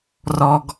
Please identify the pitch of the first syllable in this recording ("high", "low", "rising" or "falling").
low